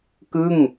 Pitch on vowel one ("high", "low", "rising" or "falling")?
falling